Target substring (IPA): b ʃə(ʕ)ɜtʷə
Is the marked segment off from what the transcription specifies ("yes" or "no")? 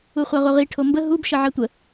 no